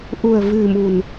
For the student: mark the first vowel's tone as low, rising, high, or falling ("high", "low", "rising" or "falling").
low